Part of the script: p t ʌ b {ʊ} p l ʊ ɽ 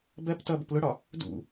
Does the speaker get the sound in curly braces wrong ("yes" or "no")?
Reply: no